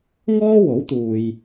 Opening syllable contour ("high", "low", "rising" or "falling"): high